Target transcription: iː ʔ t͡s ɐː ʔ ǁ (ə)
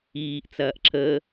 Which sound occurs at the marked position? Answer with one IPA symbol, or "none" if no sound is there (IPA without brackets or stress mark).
ə